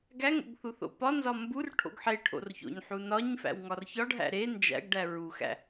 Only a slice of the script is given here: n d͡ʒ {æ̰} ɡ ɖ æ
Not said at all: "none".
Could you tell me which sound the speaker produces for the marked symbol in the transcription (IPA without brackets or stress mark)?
æ̰